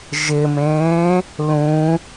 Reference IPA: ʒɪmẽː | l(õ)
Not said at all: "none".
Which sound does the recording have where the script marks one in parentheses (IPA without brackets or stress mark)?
ũ